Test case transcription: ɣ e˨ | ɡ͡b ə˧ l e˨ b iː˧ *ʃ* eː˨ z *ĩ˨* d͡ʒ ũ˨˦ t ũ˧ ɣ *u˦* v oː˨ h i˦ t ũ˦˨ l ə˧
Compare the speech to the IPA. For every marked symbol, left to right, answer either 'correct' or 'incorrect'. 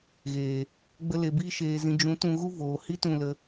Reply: correct, correct, correct

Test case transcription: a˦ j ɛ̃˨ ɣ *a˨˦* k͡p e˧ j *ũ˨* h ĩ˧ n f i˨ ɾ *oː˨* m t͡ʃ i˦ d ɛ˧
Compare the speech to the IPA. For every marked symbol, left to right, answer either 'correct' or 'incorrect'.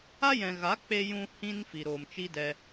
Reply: correct, incorrect, correct

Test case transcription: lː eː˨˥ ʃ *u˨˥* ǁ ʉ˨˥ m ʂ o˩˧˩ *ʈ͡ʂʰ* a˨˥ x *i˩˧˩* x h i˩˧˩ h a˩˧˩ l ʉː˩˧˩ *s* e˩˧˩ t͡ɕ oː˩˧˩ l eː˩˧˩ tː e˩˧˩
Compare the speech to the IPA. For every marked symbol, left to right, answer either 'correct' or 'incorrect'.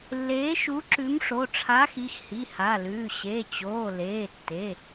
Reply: correct, correct, correct, incorrect

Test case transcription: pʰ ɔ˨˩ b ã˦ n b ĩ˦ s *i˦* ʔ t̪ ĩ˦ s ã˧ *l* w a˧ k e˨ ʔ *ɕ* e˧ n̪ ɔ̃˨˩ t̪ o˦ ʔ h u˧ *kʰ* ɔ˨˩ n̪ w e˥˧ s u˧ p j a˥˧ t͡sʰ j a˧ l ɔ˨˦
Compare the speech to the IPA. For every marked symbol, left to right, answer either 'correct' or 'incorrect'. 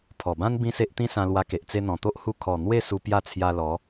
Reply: incorrect, correct, incorrect, correct

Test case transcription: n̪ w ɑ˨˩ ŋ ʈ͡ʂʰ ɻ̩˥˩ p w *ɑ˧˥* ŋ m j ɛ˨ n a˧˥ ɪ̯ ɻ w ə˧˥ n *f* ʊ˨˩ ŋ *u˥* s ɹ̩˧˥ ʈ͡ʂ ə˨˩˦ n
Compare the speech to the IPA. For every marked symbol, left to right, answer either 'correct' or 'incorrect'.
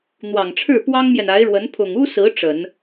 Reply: incorrect, incorrect, correct

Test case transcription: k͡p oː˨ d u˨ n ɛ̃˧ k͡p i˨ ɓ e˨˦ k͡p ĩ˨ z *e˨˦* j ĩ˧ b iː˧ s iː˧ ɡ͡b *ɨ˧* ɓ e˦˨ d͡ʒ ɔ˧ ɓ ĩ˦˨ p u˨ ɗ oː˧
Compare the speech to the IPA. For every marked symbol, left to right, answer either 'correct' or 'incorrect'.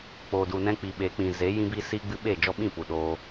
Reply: correct, correct

